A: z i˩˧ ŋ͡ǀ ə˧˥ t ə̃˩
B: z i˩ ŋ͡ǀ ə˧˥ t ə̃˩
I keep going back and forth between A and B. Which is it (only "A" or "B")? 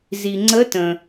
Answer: B